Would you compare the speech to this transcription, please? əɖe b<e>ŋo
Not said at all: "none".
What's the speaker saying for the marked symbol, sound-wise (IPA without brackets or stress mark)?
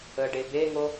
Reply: e